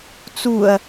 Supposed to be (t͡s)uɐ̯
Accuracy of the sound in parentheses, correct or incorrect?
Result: correct